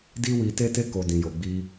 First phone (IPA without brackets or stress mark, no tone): d